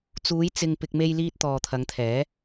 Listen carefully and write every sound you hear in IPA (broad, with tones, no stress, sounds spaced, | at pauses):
t͡s uː˨˧ j t͡s ɪ˨ ŋ p ɪ˨ k̚ m e˧ j l iː˧ t̚ t̪ ɔː˨ t̪ʰ ɐ˨˧ ŋ t̪ʰ ɛː˨˥